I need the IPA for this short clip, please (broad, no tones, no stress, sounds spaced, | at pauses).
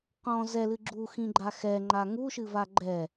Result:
q ɔ̃ z ɛ l ɨ ɡ͡ǁ u x ĩ ɡ͡ǃ a x ɛ ŋ͡ǃ a ŋ u ʃ ɨ v a ɡ͡ǃ ɛ